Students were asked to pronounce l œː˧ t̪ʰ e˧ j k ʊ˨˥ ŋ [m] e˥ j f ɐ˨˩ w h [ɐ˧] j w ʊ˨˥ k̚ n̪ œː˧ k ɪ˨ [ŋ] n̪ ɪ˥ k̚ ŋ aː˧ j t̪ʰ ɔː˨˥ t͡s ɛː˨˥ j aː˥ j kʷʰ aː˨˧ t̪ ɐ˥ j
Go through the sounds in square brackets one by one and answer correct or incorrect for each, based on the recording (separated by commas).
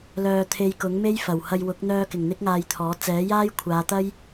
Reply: correct, correct, correct